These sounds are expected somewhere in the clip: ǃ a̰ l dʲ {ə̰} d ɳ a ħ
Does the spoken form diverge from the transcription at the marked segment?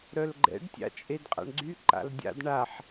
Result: yes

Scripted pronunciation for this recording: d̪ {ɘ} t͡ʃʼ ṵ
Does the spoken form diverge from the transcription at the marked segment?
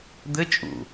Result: no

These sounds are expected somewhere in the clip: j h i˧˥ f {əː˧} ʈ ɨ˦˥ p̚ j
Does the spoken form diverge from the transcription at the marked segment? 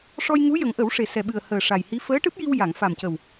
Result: yes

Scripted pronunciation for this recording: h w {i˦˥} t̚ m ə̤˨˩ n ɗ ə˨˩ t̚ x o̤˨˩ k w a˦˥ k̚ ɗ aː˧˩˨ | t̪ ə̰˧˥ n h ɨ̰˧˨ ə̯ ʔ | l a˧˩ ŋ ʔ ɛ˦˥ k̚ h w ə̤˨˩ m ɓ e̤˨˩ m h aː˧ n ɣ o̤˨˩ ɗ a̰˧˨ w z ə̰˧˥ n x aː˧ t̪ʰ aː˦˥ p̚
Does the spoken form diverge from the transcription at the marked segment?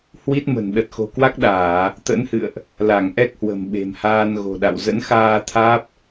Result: no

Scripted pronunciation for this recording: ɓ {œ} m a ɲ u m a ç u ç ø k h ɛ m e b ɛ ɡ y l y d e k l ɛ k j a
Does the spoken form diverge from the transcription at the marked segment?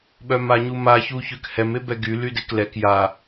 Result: no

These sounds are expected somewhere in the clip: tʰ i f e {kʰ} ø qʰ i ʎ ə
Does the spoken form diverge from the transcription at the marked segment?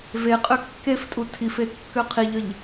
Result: yes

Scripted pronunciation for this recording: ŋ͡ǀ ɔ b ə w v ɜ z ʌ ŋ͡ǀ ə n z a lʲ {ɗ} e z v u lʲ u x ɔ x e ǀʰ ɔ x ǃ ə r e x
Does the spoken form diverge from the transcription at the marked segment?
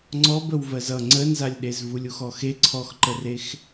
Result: no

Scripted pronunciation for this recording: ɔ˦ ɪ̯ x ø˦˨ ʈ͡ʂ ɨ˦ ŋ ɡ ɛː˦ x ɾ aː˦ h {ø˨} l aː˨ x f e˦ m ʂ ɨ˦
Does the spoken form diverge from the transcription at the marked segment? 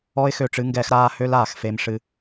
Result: yes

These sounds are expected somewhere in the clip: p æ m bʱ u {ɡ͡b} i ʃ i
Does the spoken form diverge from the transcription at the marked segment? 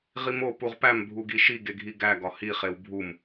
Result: yes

